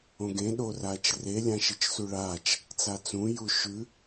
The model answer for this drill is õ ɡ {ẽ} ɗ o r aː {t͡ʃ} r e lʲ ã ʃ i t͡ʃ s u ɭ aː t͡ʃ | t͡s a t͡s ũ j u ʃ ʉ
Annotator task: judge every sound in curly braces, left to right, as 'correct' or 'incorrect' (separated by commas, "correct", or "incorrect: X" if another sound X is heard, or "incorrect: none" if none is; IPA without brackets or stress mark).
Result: correct, correct